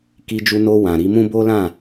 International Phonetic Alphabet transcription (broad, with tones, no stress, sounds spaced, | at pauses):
k i˧ d͡ʒ u˧ n o˧ w ã˨ ɾ i˧ m ũ˦ b o˦ l ã˦˨